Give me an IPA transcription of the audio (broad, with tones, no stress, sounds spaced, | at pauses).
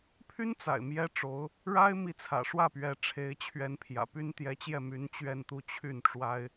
pʰ y˥ n t͡s a̰˨˩ ɪ̯ m j ɛ˥ ʈ͡ʂ o˧˥ ʊ̯ | ɻ a˥ ɪ̯ m i˧˥ t͡sʰ ä̰˨˩ ʂ w ä˥˩ p ɥ ɛ˧˥ ʈ͡ʂʰ e˧˥ ɪ̯ t͡ɕʰ ɥ ɛ˧˥ n pʰ j ä̰˨˩ p y˥ n t̪ j ɛ˧˥ t͡ɕ j ɛ˥˩ m y˧˥ n t͡ɕ ɥ ɛ˥˧ n t̪ u˥˧ t͡ɕʰ y˥˩ n ʈ͡ʂ w a˥ ɪ̯